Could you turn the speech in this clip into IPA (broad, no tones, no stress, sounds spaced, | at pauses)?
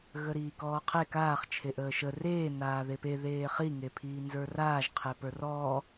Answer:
ɣ ə ɾ iː k ɔː qʰ e k aː χ t͡ʃʰ e ʔ əː ʃ ə r eː n aː ð e p e ð eː χ i ŋ e pʰ iː n z ə˞ r aː ʒ qʰ e p ə˞ r ɔː